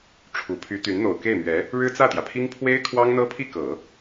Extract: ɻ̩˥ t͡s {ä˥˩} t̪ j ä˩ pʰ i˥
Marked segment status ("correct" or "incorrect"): correct